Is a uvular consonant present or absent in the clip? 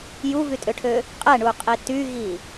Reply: present